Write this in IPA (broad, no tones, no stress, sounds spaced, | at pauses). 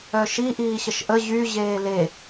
œ ʃ i ʔ iː ɕ ə ʃ ʔ ə ʑ y ʑ eː l e